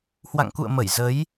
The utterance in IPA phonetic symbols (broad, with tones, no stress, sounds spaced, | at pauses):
h w a̰˧˨ ŋ k ṵ˧˨ ə̯ m ə˧˩ j z ə˨˦ j